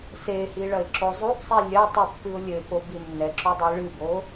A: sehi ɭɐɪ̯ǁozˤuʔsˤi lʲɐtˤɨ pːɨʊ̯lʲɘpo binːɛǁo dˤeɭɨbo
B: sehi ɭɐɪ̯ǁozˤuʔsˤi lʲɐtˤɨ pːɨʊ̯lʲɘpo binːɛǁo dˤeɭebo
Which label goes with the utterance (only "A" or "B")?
A